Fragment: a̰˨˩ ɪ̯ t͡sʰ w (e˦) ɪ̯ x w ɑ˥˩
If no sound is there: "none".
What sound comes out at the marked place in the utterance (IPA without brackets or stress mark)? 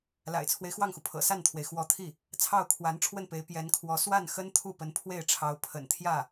e˦